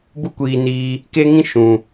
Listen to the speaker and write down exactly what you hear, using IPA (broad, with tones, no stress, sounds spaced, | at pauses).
b u˦ kʷ iː˧ n iː˧ | k e˦ ŋ ĩ˦ ʃ ũ˨